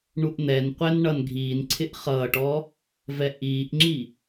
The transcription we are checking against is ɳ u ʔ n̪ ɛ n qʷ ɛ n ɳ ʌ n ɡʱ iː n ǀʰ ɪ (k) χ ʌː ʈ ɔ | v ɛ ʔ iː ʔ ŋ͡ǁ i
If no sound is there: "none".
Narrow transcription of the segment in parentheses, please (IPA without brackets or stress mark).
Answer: ʔ